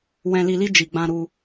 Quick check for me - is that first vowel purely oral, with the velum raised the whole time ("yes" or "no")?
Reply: no